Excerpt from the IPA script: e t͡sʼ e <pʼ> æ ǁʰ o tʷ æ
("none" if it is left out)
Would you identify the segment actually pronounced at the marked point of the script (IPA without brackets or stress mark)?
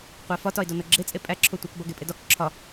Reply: pʼ